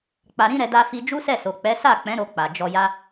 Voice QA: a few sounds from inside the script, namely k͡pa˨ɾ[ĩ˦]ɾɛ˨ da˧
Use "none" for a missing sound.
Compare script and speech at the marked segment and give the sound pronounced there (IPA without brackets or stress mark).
ĩ˧